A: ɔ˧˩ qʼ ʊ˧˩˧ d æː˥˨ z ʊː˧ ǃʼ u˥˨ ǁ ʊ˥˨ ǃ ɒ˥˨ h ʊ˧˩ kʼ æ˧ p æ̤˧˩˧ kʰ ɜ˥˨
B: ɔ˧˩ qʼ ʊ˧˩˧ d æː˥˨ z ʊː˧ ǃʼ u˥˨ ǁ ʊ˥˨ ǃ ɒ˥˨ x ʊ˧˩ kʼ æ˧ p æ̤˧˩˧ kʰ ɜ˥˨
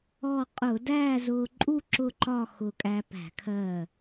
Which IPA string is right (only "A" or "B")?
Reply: B